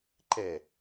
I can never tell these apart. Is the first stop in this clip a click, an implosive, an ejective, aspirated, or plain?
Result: click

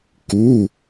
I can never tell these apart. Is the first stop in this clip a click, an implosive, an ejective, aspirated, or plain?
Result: plain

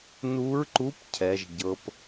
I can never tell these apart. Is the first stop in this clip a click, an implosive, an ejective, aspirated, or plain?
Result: click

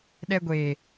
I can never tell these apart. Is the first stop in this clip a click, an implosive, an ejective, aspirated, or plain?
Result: implosive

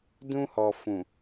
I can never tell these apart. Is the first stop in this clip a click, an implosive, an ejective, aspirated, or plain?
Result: plain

